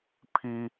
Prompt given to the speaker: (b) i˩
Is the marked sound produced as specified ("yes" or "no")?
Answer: no